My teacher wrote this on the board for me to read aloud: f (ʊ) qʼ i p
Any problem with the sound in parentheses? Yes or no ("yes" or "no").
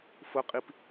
no